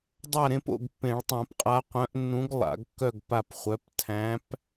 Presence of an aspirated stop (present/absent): present